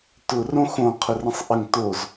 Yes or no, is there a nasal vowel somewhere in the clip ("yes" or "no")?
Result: yes